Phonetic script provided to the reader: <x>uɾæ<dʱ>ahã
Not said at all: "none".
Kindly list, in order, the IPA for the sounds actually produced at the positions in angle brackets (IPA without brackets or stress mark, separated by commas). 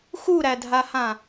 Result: x, dʱ